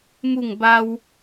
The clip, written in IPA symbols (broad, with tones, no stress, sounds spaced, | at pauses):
m u˥˧ ŋ b a˦ w